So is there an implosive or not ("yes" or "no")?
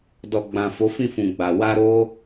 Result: no